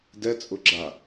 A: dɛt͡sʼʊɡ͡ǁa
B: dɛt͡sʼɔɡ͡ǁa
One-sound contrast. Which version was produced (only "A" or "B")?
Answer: A